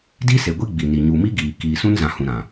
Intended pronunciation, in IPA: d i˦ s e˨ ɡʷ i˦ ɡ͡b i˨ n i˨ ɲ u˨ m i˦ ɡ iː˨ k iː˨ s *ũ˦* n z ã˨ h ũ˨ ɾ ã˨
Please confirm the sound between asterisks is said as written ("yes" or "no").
yes